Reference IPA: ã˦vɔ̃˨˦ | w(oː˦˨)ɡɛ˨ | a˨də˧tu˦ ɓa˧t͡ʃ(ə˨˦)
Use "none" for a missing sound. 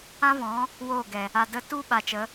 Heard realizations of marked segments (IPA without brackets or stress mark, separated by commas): oː˦˨, ə˨˦